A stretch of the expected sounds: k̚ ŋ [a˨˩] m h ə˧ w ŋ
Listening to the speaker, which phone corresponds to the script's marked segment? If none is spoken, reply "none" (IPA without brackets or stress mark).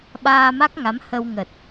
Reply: a˨˦